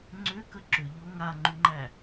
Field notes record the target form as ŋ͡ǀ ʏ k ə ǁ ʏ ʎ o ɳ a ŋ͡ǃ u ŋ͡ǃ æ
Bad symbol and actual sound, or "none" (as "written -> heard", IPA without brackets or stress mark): ɳ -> ŋ